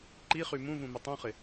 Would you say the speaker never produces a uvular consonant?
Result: no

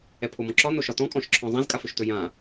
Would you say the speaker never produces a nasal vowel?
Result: no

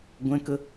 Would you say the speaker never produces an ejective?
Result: yes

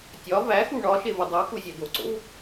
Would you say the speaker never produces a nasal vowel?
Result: yes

